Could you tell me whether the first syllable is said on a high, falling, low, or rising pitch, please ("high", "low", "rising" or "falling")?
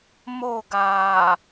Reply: falling